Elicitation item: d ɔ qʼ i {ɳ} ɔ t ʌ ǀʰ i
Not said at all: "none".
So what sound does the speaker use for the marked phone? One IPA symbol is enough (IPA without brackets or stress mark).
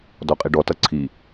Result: ɖ